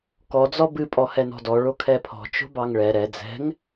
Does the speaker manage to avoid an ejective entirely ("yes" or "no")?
no